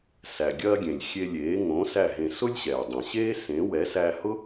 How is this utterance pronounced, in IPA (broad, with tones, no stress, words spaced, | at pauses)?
sæ˩ɡʲɐː˧ɡʲẽ˩lʲ xʲe˧lʲeː˩˥ ŋõ˩˥ sæ˥˩ɦẽ˧ sʊ˥lʲɕɛː˩dˤẽ˩ɕeː˥ sẽ˩˥wɛ˩˥sæ˧hʊ˥